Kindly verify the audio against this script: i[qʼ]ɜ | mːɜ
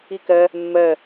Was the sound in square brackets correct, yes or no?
no